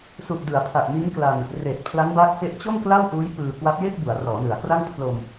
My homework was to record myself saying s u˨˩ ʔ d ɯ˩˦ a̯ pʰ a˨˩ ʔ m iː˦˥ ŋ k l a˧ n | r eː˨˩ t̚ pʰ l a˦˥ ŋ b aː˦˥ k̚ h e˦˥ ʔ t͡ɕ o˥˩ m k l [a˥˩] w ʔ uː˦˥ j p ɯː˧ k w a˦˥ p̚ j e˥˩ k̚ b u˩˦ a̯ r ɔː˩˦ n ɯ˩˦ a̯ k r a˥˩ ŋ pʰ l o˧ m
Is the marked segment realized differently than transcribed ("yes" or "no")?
no